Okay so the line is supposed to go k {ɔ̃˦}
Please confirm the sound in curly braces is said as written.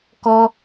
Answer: no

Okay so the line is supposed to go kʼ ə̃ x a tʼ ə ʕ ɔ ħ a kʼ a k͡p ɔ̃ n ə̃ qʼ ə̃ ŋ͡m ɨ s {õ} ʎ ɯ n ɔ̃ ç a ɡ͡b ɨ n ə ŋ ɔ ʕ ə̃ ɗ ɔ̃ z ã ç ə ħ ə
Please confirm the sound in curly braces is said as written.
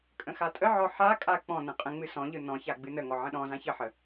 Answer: no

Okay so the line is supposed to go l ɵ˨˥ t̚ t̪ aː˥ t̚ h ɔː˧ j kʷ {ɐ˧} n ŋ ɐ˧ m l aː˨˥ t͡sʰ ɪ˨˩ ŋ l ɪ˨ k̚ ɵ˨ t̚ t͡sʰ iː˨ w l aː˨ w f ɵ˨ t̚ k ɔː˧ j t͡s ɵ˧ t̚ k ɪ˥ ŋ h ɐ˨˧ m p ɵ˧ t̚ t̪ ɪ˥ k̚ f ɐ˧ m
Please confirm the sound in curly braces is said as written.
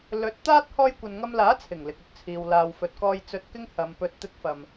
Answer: no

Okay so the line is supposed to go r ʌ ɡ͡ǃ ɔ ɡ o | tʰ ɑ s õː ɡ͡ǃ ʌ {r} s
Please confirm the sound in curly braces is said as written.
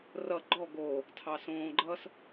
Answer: no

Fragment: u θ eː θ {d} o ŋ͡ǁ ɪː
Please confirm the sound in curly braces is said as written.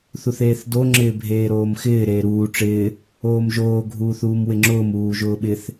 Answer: yes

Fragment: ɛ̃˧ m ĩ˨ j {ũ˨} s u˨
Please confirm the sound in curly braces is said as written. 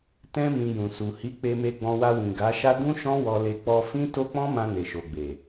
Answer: yes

